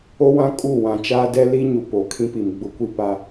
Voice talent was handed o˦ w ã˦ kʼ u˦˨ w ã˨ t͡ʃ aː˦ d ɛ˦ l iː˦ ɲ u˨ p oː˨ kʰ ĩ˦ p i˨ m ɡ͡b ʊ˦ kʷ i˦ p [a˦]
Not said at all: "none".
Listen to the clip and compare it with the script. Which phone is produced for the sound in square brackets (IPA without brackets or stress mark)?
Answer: a˦